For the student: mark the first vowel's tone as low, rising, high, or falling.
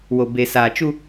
low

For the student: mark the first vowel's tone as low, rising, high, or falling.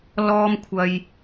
high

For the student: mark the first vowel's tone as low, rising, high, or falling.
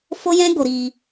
high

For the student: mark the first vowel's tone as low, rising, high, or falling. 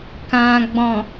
low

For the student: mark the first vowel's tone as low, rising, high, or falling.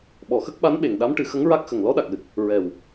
low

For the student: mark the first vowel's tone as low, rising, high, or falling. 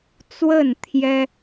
falling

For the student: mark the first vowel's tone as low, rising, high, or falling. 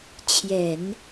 low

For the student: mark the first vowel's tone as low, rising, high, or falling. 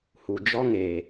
low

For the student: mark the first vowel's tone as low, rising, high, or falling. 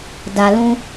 low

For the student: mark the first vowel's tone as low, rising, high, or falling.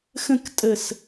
falling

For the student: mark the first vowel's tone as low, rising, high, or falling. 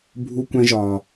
high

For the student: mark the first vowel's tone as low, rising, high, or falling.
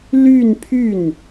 falling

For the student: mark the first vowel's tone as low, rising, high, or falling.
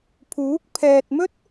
rising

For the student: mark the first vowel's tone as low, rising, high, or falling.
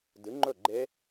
rising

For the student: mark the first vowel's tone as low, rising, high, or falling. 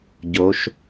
rising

